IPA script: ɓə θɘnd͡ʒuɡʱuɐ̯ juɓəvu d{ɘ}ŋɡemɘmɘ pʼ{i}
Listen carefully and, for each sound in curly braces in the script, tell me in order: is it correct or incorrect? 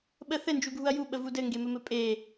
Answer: correct, incorrect: e

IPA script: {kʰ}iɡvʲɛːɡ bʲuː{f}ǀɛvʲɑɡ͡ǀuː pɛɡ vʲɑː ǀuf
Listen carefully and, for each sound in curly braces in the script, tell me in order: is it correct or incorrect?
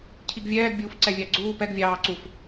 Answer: incorrect: cʰ, correct

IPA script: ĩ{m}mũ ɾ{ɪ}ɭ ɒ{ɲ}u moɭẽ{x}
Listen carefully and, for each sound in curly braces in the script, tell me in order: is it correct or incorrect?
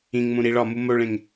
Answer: incorrect: ŋ, incorrect: i, incorrect: m, incorrect: ŋ

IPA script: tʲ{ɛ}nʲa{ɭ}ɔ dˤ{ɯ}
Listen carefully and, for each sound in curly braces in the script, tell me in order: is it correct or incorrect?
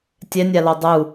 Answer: correct, incorrect: l, incorrect: u

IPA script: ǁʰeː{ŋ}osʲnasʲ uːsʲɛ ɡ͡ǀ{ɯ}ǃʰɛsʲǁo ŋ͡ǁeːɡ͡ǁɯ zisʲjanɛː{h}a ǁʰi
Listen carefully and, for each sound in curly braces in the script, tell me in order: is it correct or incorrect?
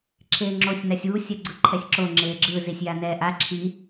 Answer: incorrect: ŋ͡ǁ, correct, incorrect: ʔ

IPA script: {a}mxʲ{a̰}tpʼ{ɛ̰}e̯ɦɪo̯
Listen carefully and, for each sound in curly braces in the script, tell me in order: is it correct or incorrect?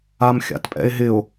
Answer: correct, correct, correct

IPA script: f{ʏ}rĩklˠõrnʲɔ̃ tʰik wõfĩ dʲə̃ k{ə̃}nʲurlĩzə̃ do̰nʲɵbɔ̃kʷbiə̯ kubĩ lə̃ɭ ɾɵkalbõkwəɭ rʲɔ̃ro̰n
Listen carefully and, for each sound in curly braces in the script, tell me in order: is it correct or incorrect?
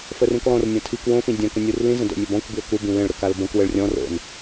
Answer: incorrect: ə, correct

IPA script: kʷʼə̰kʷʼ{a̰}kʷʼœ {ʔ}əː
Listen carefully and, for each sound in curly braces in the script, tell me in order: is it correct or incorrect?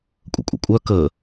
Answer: incorrect: ə̰, incorrect: k

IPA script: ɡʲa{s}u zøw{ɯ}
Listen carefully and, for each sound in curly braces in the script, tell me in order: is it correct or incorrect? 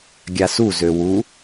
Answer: correct, incorrect: u

